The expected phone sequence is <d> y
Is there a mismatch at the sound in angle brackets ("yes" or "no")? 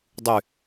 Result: yes